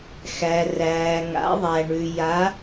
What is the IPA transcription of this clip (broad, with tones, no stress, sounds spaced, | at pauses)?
x æ˩ r æː˩ ŋ a̰˩˧ ðˤ æ˩ ɳ ʉ˩ j a˩˧